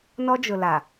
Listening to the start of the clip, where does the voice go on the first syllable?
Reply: high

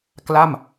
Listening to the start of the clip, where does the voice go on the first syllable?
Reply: falling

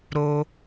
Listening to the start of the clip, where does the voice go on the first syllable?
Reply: high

